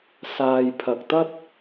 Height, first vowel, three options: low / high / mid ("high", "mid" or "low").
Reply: low